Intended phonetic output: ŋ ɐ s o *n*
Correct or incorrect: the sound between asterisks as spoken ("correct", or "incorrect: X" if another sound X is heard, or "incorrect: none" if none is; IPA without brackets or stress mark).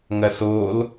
incorrect: l